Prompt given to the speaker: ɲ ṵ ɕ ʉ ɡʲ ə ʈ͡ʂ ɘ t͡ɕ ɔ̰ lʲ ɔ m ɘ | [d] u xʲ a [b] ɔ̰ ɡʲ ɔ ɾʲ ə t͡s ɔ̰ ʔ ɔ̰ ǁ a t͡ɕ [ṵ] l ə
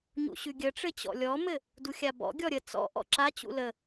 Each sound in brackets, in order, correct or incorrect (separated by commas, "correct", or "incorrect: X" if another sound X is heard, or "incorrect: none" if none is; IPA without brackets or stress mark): correct, correct, correct